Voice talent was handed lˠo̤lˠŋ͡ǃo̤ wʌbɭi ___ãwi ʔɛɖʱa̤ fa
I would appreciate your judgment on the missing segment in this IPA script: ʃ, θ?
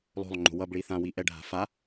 θ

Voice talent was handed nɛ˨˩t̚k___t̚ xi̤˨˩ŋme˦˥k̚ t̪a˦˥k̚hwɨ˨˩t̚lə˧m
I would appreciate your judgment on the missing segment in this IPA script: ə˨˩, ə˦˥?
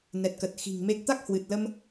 ə˨˩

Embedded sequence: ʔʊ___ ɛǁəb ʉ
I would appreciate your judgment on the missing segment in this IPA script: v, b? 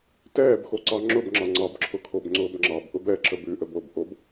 b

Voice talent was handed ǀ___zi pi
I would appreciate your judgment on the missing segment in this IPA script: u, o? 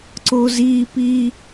o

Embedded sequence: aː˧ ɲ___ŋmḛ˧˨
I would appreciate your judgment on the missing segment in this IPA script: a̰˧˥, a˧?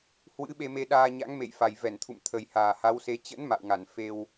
a̰˧˥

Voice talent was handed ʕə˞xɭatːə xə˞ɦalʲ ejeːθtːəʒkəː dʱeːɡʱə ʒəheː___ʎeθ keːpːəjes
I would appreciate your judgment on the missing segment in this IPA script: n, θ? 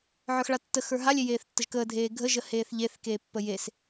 θ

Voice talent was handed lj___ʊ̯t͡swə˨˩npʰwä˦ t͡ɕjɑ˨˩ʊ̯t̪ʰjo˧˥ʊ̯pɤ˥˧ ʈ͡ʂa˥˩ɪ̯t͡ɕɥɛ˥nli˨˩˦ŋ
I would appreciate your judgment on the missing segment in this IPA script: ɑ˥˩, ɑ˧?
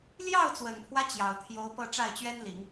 ɑ˥˩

